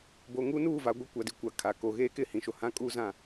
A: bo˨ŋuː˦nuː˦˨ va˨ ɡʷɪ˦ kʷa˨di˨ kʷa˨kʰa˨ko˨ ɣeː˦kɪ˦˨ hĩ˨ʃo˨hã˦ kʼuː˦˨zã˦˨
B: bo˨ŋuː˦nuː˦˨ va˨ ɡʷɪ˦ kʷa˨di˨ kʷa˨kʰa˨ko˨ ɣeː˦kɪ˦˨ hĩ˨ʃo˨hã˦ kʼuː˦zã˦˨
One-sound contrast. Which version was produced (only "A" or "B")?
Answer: B